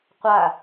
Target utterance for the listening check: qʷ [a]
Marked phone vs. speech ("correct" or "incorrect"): correct